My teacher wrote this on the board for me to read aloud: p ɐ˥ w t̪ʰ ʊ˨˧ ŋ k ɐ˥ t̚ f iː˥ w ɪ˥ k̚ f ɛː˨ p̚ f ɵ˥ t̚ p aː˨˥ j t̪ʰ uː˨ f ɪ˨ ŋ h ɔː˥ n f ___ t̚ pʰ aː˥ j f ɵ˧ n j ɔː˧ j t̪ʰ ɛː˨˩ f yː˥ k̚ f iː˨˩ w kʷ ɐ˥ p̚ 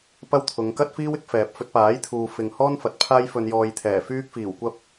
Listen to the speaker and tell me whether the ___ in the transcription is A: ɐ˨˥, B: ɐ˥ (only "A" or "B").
A